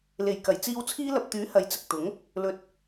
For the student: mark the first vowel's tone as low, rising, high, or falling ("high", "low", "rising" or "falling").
low